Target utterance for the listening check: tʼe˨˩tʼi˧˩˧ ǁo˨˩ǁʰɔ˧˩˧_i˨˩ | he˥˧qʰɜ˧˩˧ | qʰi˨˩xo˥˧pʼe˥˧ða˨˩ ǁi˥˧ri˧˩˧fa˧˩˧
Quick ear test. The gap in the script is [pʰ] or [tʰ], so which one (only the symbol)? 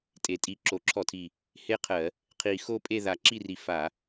tʰ